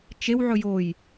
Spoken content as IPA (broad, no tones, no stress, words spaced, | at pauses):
t͡ʃew ʕɵjoj